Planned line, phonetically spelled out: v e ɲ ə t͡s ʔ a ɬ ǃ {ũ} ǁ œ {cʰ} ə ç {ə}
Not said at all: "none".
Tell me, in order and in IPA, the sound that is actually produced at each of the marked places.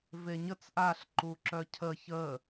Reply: u, cʰ, ə

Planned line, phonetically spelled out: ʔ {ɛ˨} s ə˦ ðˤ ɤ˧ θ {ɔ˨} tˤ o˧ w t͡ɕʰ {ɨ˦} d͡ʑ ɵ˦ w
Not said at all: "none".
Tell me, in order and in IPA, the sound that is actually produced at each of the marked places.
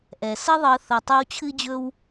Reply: ɛ˨, ɤ˨, ɨ˦

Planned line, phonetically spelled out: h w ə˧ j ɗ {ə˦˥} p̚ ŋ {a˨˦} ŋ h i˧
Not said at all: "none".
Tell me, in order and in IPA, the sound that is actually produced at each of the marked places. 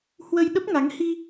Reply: ə˦˥, a˨˦

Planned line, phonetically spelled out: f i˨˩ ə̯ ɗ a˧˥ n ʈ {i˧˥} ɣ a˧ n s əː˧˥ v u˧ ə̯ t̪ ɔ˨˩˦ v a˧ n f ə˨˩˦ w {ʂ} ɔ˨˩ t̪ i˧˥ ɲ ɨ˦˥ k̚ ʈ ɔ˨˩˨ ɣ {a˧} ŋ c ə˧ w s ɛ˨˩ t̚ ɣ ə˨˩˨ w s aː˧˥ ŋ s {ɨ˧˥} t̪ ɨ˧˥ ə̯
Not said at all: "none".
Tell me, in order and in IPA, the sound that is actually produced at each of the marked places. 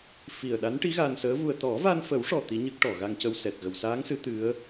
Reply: i˧˥, ʂ, a˧, ɨ˧˥

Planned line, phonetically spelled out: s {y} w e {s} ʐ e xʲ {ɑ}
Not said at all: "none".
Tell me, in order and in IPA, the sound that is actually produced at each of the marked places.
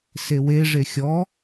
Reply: e, none, ɔ

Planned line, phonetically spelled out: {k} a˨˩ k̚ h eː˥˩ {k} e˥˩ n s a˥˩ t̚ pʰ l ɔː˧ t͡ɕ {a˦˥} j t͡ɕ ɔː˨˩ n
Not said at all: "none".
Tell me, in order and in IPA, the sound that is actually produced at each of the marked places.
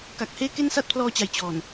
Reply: k, k, a˨˩

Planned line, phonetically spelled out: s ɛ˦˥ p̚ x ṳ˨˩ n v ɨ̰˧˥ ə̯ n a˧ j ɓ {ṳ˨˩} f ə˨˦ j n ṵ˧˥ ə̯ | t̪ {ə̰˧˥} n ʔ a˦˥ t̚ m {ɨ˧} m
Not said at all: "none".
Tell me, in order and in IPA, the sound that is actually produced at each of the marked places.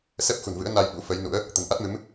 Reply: ṵ˧˥, ə̤˨˩, ɨ˨˦

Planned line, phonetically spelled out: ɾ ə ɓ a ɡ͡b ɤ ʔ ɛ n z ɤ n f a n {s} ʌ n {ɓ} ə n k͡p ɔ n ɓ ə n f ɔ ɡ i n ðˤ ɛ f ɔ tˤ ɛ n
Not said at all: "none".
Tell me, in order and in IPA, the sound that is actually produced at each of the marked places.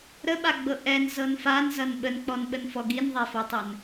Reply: z, ɓ

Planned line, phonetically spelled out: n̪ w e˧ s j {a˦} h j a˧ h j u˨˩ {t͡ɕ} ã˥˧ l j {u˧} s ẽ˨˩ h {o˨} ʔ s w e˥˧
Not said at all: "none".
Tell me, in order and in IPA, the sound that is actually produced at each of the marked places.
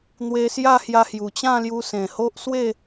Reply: a˥˧, t͡ɕ, u˧, o˦

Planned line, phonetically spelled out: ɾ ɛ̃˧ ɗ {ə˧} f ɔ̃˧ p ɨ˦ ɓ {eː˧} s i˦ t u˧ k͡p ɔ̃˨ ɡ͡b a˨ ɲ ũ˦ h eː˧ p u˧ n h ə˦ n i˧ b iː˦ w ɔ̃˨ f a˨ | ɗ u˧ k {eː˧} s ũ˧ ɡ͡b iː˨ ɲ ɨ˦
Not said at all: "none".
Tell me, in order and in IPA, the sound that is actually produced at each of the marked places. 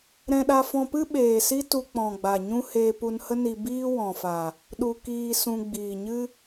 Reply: a˧, eː˨, iː˧

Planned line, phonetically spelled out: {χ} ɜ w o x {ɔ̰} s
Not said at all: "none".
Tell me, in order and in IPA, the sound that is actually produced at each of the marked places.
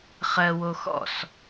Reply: χ, ɔ̰

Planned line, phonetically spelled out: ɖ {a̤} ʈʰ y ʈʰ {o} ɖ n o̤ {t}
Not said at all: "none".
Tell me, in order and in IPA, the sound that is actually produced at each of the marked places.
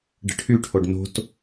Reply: ə̤, o, t

